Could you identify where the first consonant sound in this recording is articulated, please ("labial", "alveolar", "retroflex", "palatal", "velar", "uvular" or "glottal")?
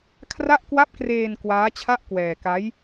velar